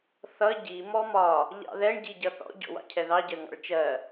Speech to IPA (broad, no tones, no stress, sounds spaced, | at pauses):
θ ʌ ɟ i m ɔ m ɒ | ʎ ɑ̰ ð ɛ ɳ ɟ i ɟ ʌ θ ɔ̰ ɟ ɔ̰ w ɑ̰ cʰ ɛ ð ɑ ɟ ɜ ŋ ɑ̰ ɭ t͡ʃ ɜ